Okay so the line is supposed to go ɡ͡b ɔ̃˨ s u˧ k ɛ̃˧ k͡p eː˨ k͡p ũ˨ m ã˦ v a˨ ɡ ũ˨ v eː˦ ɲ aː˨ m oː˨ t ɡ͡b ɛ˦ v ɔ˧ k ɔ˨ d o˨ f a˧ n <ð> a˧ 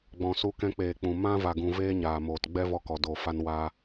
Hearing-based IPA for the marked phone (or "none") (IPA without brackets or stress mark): w